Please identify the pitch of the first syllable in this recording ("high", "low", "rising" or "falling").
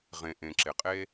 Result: low